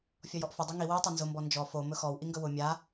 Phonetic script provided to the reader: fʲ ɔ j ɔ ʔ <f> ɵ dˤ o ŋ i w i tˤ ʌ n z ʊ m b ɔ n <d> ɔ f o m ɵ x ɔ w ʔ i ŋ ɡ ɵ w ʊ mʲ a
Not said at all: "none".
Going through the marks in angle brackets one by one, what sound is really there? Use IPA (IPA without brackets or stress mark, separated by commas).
f, d͡ʒ